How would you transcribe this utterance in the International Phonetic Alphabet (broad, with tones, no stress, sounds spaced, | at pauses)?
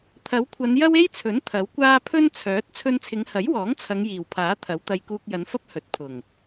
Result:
t̪ʰ ɐ˨˥ w kʷʰ ɐ˨˧ n j ɐ˥ w e˥ j t͡sʰ ɵ˨˥ n t̪ʰ ɐ˨˥ w kʷ aː˥ pʰ ɵ˥ n t͡sʰ œː˨˥ t̚ t͡sʰ ɵ˧ n t͡sʰ ɪ˨˧ ŋ h ɐ˨˥ j w ɔː˨˥ ŋ t͡sʰ ɐ˨˧ ŋ j iː˨˩ w pʰ aː˨˥ t̪ʰ ɐ˨˥ w t̪ ɐ˧ j k uː˧ k̚ j ɐ˨˧ n f ɐ˥ p̚ h ɵ˨ t̚ pʰ ʊ˨˩ ŋ